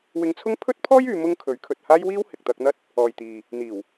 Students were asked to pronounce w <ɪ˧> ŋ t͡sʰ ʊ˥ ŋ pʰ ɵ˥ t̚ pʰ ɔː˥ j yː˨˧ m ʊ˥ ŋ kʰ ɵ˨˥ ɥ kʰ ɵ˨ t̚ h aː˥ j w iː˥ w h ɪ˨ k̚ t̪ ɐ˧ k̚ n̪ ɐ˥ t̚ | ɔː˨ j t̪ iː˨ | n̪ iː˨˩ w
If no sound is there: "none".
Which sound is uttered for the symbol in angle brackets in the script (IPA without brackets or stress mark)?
ɪ˧